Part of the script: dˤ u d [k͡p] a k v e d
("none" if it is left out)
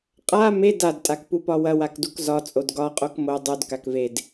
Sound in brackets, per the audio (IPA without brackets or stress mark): k